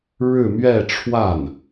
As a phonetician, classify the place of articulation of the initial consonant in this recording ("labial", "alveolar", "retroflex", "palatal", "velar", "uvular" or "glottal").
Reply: retroflex